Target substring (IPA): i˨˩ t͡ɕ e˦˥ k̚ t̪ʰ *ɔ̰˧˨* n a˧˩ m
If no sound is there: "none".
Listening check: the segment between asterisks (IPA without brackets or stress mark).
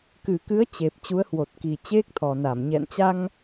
ɔ˨˩